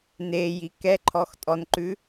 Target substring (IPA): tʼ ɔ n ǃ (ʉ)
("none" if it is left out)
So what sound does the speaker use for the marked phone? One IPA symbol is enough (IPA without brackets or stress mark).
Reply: ʉ